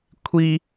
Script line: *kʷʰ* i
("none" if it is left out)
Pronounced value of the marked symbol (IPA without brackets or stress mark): kʷʰ